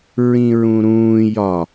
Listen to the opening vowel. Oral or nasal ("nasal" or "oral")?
nasal